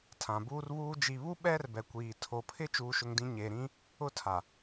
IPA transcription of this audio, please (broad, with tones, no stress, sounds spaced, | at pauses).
tʰ ã˨ b uː˦ r β uː˦ d͡ʒ i˨ β u˦ ɓ ɛ˦ r b ɛ˨ kʷ iː˨ tʰ o˨ pʰ ɪ˦ t͡ʃ uː˦ ʃ ʊ˦ ŋ d ĩ˦ ɲ e˨ ɾ ĩ˦ | ʊ˦ tʰ a˨